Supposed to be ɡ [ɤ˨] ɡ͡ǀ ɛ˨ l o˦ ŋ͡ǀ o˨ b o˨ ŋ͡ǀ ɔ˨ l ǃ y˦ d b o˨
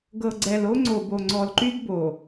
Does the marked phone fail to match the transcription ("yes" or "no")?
no